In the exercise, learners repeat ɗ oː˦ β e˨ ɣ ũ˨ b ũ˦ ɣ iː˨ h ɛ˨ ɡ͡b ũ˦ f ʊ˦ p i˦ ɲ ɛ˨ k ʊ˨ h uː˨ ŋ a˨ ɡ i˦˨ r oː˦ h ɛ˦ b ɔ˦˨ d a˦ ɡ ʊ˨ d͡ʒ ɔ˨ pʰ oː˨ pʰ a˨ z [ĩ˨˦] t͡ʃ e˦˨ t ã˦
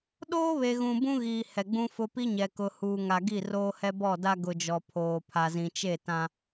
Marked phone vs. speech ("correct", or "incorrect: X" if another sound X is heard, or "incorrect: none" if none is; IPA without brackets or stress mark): incorrect: ĩ˨